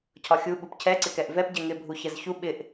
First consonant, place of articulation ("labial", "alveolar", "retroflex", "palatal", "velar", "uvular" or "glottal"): palatal